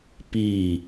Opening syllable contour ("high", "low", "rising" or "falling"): falling